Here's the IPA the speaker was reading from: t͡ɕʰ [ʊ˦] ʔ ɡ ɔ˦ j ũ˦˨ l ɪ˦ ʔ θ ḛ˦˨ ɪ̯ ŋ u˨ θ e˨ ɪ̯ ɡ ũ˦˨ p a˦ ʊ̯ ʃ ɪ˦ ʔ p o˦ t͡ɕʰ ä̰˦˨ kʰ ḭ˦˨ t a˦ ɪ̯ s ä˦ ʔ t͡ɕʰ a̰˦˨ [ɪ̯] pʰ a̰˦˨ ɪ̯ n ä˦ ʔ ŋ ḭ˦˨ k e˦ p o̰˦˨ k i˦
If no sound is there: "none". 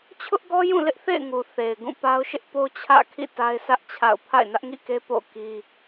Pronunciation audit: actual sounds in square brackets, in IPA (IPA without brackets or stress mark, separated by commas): ʊ˦, ʊ̯